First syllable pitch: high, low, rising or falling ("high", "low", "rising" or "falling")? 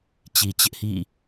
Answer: low